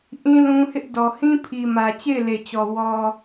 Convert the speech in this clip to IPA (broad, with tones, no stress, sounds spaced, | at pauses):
ʔ ĩ˦ l ũ˦ h ɪ˦ ʔ d ɔ˨ h ĩ˦ pʰ i˨ m ä˨ t͡ɕ e˦˨ ɪ̯ l e˨ t͡ɕ ɔ˨ w ɔ˨